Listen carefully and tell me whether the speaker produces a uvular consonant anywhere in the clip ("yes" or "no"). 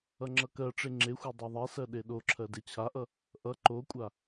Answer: no